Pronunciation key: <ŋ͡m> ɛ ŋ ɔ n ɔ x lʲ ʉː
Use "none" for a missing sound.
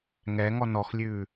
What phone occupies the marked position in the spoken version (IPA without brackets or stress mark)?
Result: ŋ